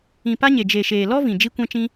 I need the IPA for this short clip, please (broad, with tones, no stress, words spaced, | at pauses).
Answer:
ĩ˨pa˧ɲe˨ d͡ʒe˨ʃeː˨ lɔ˦vĩ˨ d͡ʒi˧kʷɛ̃˧t͡ʃĩ˧